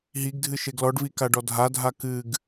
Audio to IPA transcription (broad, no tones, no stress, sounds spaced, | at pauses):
ɦ i ɡ dʱ ɨ ʃ e ɡ l ɔ ɖ v i k a ɖ ɔ dʱ a dʱ a k ɨ ɡ